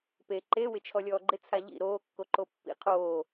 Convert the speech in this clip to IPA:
p e ǃ e w ɪ t͡ʃʰ ɔ lʲ ɔː ɡ͡ǃ ɪ t͡sʰ a ʎ ḭ ɾ oː kː o ǃ o pː ḭ qʰ oː

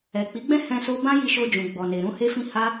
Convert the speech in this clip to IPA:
ɛ˨ k͡p i˨˦ ɡ͡b ɛ̃˦ h ɛ̃˦ s o˦ b ã˦ j i˧ ʃ o˧ d͡ʒ ũ˨ ɡ͡b ɔ˨ n e˨ ɾ ũ˧ h e˧ f ĩ˧ h a˦

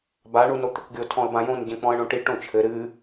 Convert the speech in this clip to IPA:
b a ɳ u n o t̪ ɘ k ɡʲ o tʰ ɔ̃ ə̯ b ã j õ n ɟ ɛ̃ k͡p ɔ̃ ə̯ ɳ õ ʈ i ʈ õ t͡ʃʰ ɘ ɾ ɨ

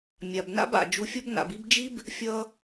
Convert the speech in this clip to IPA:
mʲ a˨ b n a̰˦ b a̰˨ d͡ʒ u˨ fʲ ʌ˧ b n a̰˨ b i˧ b d͡ʒ i˦ b | fʲ ʌ˧

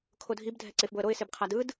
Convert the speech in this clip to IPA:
kʰ o dʱ i b dʱ ɛ ǀ e f b o ə̯ ɾ o ɪ̯ s e b qʰ a d ɯ d

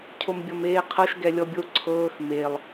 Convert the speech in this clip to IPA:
cʰ o m bʲ ɔ m eː qʰ ɤ ʃ ɡ ɛ lʲ ɔ bʲ o ǀʰ ɤː x m e lˠ

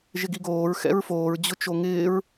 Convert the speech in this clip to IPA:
ʒ ɪ ɡ i ɡ oː ɹ x ɛ̰ ɹ f oː ɹ d͡ʑ ʊ t͡ʃ o ŋ ɪː ɹ

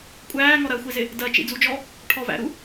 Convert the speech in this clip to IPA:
kʷʼ æː ŋ ɔ ɾ ɜ xʷ i z ɪ | d ɜ t͡ʃ ḭ d͡z u d͡ʒ ɔ | ʈʰ ɔ v æ̰ ɾ u

